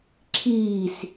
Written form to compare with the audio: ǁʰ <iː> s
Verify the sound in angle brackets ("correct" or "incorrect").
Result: correct